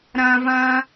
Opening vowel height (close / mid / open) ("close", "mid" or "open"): open